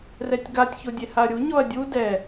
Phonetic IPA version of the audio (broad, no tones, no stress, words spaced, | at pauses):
rɛtʲɡatʲ çodʲehaɐ̯ɾʲu ɲɔɐ̯dʲu dɛ